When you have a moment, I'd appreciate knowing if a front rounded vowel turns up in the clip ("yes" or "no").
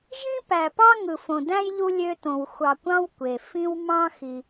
yes